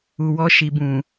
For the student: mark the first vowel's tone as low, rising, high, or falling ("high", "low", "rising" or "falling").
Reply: low